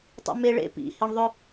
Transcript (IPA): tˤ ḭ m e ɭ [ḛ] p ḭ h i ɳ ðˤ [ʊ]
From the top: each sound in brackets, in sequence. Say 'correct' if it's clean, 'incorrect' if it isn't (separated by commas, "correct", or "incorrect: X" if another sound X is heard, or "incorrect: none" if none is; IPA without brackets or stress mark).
correct, correct